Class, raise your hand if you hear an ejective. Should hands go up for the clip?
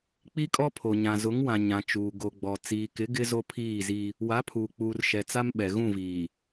yes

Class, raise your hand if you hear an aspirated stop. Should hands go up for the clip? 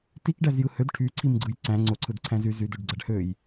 yes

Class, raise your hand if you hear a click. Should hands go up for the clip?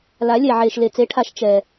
no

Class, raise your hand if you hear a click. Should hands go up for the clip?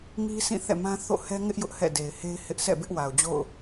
no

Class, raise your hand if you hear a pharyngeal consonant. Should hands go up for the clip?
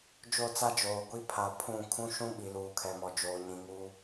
no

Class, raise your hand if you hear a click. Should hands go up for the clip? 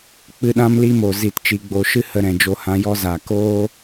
no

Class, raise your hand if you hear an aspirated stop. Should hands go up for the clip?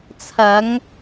yes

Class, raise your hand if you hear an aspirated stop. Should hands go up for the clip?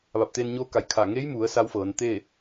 yes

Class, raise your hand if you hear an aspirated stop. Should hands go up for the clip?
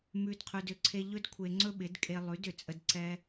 yes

